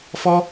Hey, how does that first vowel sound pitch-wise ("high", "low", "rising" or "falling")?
high